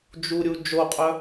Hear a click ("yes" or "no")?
no